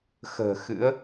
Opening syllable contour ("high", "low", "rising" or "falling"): low